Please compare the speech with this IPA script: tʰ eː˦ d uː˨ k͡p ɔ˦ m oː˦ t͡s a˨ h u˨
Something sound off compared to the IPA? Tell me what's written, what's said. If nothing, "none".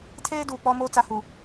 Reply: none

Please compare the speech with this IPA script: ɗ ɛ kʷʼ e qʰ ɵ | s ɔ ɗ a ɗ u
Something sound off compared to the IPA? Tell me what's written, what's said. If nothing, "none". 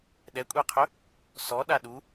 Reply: none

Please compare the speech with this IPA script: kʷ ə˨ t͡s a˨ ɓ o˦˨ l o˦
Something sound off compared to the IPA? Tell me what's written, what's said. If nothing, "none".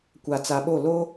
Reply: ə˨ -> a˨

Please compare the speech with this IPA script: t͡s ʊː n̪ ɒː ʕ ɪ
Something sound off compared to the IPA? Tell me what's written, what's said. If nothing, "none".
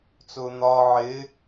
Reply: none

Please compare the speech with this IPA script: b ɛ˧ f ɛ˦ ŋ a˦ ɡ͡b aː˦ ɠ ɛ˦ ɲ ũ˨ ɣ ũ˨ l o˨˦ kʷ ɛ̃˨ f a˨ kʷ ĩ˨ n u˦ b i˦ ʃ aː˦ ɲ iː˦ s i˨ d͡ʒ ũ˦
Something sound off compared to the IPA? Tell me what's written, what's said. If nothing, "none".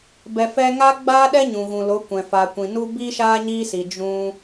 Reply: ɠ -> ɗ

